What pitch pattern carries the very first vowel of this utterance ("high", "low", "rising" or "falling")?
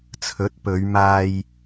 rising